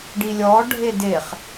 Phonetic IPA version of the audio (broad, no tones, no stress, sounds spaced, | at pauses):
ɖ i lʲ ɔ ɖʱ e d e χ